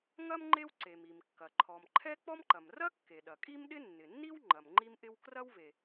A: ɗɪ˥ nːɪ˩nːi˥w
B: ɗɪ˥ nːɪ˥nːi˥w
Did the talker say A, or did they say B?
A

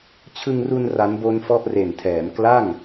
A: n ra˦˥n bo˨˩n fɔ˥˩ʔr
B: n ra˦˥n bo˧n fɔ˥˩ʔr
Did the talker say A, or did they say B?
B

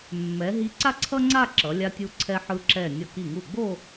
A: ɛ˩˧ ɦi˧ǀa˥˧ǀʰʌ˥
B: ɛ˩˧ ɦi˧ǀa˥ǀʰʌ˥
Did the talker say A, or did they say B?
B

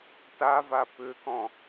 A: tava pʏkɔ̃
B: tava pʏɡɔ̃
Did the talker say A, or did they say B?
A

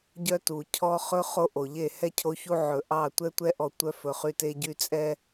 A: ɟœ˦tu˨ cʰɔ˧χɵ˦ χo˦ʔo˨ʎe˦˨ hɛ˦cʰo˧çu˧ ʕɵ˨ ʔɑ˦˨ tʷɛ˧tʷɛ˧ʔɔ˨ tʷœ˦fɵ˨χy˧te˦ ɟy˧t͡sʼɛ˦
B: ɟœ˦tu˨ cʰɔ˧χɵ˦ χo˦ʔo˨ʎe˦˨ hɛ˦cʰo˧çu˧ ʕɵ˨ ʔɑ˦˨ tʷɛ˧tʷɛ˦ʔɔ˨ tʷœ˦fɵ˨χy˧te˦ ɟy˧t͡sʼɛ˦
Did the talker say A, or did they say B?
A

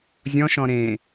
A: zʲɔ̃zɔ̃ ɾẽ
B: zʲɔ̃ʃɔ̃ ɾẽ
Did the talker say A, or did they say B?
B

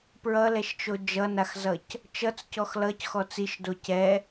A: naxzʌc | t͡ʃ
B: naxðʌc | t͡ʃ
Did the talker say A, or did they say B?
A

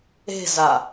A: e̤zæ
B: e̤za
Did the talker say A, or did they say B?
B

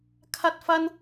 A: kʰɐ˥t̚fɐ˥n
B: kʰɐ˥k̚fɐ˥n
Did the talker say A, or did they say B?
A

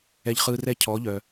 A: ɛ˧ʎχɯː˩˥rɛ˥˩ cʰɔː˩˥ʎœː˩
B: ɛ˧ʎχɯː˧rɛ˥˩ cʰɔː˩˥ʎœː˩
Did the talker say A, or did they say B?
B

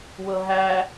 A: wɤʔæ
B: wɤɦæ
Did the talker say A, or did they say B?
B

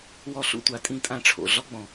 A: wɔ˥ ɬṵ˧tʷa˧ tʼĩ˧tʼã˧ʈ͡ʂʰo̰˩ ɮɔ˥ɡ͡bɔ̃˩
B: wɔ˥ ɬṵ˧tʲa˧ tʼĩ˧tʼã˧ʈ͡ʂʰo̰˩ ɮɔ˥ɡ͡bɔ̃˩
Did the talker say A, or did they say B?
A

